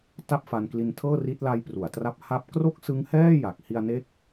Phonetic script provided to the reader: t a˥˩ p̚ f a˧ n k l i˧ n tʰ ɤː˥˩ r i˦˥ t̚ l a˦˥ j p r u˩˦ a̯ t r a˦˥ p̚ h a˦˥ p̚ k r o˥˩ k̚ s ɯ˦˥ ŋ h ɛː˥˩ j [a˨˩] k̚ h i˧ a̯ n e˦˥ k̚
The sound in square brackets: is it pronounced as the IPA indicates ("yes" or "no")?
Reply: yes